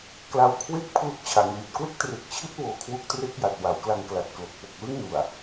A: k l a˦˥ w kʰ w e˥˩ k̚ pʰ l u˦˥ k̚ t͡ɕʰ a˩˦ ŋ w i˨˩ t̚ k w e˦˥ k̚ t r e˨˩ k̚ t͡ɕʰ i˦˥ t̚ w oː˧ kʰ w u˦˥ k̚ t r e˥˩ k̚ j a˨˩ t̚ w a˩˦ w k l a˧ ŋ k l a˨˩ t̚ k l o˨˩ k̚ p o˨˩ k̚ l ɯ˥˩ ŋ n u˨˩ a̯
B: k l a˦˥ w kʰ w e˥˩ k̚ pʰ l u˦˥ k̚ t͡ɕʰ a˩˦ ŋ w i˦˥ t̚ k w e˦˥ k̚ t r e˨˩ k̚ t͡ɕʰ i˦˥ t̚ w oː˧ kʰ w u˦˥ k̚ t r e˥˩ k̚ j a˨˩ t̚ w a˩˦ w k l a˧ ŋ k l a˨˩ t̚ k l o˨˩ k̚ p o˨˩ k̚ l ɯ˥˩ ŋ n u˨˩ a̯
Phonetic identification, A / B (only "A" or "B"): A